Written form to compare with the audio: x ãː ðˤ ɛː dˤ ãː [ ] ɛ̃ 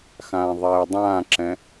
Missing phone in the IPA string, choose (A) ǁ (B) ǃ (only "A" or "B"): A